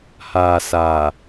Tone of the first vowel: low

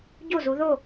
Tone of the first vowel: falling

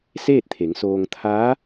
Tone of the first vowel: falling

